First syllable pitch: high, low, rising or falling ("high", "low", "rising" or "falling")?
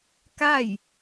falling